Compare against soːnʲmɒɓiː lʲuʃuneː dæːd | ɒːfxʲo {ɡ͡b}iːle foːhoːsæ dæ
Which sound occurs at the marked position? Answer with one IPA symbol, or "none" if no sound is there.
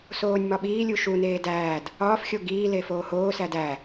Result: ɡ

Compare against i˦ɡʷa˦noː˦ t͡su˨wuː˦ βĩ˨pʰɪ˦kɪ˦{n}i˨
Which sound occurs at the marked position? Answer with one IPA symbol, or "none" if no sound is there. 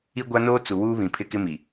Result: m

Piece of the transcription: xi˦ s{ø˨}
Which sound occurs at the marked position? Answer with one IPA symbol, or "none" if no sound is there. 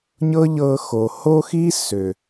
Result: ø˨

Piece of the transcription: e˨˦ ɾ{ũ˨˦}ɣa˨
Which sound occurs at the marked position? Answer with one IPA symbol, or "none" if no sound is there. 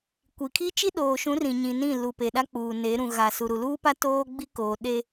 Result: ũ˨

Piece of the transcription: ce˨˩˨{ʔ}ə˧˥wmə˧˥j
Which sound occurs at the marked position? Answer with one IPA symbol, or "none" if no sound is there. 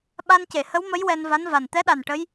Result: h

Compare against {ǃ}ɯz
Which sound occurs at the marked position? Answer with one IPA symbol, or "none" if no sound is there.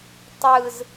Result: tˤ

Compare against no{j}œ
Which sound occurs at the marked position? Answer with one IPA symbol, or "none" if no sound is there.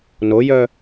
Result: j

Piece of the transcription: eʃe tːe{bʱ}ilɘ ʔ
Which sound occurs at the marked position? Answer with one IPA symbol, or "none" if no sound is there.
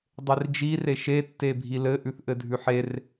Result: bʱ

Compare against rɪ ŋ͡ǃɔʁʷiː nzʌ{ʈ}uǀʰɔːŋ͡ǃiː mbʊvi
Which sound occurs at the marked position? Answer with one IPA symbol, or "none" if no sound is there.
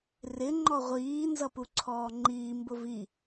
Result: p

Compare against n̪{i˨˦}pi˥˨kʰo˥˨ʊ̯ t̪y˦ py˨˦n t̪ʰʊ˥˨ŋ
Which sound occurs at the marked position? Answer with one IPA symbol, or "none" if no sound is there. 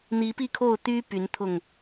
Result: i˨˦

